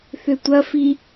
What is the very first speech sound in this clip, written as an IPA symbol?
θ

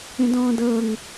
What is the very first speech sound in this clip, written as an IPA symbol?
ẽ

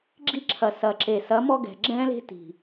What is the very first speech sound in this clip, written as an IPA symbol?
ɡ͡ǁ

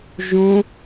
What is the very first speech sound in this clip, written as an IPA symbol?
ʒ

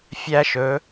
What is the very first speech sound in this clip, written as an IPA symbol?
fʲ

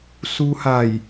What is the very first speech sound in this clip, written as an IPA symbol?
s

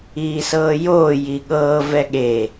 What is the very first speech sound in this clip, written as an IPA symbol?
iː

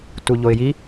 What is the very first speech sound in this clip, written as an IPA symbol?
t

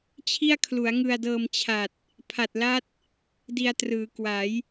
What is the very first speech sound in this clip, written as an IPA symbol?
t͡ɕʰ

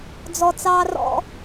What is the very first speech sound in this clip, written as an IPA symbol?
d͡z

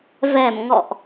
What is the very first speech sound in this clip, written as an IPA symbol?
v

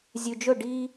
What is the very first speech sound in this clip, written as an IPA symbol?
zʲ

